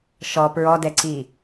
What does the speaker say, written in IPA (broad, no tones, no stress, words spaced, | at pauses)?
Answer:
ʃɔ pɹɔdɛǀi